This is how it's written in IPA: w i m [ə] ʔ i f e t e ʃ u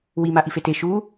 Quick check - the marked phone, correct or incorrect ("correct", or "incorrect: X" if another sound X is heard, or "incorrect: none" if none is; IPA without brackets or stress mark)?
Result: incorrect: a